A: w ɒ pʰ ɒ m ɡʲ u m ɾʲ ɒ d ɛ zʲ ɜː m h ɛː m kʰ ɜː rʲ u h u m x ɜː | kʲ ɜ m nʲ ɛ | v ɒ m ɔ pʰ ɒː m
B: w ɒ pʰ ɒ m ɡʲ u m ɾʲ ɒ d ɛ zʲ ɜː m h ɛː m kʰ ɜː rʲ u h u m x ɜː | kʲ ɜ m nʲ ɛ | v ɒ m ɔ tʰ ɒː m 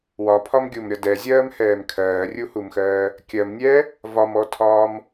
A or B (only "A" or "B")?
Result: B